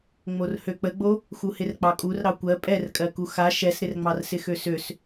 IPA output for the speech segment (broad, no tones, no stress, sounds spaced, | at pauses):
ŋ͡m o r h ø k͡p ə ɡ͡b o | x u h ɪ r k͡p ɑ kʼ u r ɾ ɑ kʷ ɜ pʼ ɛ r kʼ ɜ k u x a ʃ ɛ s ɾ ɪ r ŋ͡m ɑ r s ɪ x ø s ø s